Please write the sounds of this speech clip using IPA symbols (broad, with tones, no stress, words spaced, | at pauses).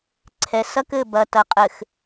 ǀʰɛ˨sɐ˦kɘ˦˨ bɐ˨ tɐ˨qʼɘ˨x